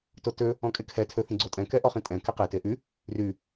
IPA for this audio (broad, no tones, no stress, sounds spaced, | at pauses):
t o t ø | ɔ̃ kʼ e kʰ ɛ tʰ ø θ ĩ ɡ͡ǀ o tʼ ɛ̃ k ɛ ʔ ɔ χ ĩ tʼ ɛ̃ k e q e t e ʔ y | r y